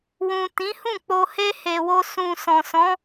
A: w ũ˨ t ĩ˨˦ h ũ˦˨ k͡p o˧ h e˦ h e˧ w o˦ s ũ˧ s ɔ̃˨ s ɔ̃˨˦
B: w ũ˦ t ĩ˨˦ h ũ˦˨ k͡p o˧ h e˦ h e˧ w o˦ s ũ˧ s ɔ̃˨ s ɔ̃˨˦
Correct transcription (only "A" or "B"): A